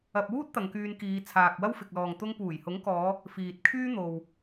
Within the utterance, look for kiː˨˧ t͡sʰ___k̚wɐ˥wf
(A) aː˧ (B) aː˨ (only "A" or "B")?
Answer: B